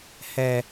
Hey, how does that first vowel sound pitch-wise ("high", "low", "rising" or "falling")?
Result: high